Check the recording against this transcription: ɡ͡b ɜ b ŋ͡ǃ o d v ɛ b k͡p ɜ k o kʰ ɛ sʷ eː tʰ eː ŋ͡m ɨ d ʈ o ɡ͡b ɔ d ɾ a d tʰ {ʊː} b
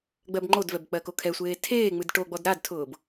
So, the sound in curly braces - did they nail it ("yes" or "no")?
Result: yes